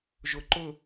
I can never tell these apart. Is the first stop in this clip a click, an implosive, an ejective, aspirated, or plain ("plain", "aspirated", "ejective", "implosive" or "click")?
click